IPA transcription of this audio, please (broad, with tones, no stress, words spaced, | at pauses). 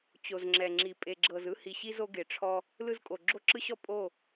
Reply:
t͡ɕo˨zŋ͡ǁɛ˨ŋ͡ǁi˨ pʼe˨ɡ͡ǁɤ˨zɯ˦ hi˨ɕi˦zo˦ ɡe˨ʈ͡ʂʰɔ˦ | lɯ˦zkʼo˨ ɡ͡ǁo˦ǁɯ˦ɕɔ˦ pʼo˦˨